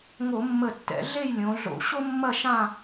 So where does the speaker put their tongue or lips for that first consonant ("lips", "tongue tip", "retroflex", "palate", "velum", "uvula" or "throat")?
velum